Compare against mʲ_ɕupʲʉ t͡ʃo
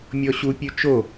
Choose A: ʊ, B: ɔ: B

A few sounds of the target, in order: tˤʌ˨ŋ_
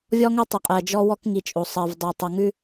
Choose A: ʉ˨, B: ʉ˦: B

